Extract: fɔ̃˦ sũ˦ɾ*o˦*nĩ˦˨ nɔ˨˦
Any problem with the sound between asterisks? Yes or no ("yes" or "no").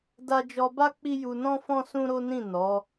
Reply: no